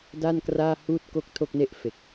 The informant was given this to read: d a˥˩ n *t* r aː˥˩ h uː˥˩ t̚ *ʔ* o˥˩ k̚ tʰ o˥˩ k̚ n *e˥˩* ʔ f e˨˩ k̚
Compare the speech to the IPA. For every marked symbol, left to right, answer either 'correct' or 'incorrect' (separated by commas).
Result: incorrect, incorrect, correct